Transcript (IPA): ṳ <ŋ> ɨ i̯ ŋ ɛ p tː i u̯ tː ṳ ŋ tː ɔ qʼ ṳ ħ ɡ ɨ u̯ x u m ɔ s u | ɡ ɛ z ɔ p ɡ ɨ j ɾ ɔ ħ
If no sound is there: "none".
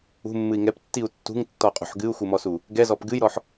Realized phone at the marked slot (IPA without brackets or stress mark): mː